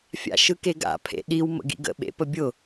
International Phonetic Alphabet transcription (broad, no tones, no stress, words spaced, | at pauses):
fʲa̰ʃɯkeɡa̰ pʰḛɗiw mə̰ɡḭɡə̰ ɓḛpəbʲʊ